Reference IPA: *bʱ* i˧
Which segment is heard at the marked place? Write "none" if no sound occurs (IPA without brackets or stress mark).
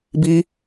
b